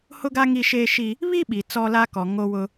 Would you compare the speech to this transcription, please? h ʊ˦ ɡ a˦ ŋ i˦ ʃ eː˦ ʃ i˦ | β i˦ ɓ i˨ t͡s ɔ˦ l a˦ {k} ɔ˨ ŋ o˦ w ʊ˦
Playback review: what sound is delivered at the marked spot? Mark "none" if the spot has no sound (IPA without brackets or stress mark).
k